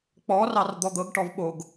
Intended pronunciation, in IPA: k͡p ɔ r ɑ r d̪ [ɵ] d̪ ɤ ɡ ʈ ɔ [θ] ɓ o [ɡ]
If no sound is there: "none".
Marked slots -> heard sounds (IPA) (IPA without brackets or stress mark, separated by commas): ɔ, v, ɡ